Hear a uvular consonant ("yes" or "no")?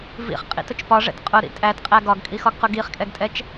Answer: yes